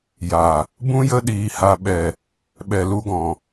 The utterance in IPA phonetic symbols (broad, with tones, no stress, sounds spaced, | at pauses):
j a˨ | b ũ˦ j ə˦ ɗ iː˧ h a˧ ɓ ɛ˨ | ɓ ɛ˨ l u˧ ɡ ɔ̃˨